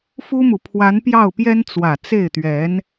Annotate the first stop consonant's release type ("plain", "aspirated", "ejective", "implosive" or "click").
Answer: aspirated